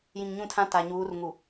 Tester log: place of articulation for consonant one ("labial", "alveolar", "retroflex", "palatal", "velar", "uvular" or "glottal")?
palatal